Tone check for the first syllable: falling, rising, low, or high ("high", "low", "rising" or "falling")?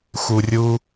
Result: low